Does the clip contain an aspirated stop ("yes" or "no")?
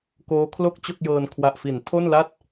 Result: yes